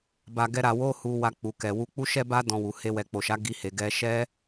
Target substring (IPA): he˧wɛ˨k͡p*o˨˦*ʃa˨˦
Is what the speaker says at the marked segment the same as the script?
no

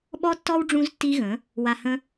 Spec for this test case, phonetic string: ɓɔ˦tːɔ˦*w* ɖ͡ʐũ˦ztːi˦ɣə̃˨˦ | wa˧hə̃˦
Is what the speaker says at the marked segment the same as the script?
yes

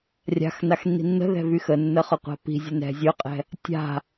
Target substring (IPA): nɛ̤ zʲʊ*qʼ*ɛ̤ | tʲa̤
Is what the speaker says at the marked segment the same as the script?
yes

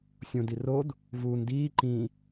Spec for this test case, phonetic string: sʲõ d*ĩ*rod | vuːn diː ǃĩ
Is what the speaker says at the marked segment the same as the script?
no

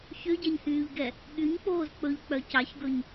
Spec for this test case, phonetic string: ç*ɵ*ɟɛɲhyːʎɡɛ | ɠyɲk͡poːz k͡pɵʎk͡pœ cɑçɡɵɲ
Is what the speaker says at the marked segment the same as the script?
no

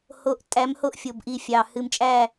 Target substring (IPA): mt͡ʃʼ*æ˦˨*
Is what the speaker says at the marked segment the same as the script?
yes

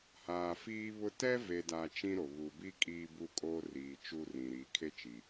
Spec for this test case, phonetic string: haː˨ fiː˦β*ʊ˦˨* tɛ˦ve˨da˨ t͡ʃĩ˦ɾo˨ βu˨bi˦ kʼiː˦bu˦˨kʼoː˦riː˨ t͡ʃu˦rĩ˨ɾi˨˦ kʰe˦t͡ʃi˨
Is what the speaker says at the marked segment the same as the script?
no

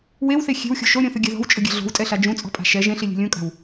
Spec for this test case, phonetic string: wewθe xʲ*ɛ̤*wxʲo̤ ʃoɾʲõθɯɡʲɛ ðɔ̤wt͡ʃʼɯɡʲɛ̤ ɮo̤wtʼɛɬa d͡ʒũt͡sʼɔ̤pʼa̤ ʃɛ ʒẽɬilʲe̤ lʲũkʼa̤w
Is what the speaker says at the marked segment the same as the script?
no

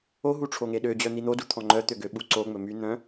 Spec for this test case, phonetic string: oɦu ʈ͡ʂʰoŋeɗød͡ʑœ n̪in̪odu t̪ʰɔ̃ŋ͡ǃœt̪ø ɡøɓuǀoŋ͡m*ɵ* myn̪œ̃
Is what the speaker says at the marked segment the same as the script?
yes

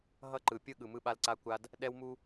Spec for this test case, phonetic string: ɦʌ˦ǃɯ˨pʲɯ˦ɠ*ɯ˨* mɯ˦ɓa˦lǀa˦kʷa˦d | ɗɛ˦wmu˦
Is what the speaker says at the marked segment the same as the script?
yes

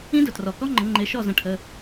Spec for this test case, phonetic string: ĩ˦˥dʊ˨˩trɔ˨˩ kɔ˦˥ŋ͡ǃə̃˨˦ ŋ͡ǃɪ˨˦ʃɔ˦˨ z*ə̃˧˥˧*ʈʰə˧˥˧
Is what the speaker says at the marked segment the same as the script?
yes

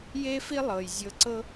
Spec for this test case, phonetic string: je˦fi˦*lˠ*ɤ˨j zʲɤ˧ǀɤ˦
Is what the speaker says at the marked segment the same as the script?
yes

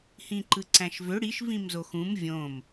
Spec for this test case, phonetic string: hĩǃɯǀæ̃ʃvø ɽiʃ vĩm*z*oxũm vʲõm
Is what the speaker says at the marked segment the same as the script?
yes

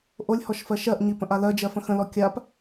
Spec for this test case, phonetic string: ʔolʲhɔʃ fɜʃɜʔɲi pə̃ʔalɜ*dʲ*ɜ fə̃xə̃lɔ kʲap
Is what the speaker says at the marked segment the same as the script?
no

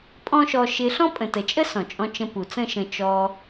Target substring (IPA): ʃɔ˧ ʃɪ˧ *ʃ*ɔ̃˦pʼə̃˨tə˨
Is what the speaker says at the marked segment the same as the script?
no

